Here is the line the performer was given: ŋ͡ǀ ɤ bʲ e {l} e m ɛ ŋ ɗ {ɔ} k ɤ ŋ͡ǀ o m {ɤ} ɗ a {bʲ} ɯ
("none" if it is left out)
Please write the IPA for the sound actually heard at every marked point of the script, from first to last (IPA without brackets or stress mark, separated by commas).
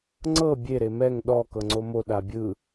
ɾ, ɔ, o, bʲ